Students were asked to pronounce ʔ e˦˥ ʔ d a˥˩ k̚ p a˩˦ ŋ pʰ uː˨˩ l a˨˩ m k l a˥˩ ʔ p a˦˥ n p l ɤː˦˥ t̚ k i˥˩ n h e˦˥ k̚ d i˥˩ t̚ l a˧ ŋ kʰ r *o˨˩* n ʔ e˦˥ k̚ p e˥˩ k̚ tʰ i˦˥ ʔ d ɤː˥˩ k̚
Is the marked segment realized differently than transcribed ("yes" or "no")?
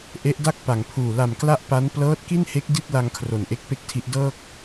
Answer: no